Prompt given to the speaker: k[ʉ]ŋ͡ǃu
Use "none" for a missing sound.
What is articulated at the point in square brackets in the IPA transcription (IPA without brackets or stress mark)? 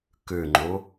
ʉ